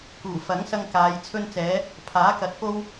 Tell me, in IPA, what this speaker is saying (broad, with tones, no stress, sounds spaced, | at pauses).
k uː˨˩ f ɐ˨˥ ŋ s ɐ˧ ŋ k aː˨˧ j t͡sʰ ɵ˧ n t͡s ɛː˨˧ | pʰ aː˨˥ k ɐ˨˥ t̚ p o˥ w